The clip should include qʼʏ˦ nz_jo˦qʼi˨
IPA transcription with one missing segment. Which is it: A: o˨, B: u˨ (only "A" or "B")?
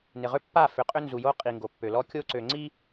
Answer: B